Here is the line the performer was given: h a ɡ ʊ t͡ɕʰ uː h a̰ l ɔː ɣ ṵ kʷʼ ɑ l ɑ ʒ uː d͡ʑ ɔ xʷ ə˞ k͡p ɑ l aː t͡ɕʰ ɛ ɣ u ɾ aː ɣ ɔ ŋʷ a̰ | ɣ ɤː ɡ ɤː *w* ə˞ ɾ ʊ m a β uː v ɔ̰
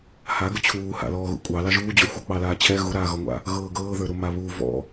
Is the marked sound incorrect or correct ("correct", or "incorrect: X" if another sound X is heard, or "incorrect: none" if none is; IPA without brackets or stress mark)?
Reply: incorrect: ð